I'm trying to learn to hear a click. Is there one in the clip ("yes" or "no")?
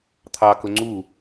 yes